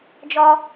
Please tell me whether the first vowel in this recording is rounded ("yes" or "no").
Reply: yes